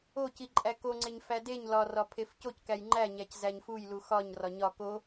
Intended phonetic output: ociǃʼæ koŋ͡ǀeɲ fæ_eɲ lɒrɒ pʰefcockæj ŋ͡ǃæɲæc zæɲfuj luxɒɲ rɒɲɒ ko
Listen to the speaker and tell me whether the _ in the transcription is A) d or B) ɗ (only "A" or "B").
A